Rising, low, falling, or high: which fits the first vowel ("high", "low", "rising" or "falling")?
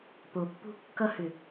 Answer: low